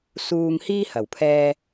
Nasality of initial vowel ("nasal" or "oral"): oral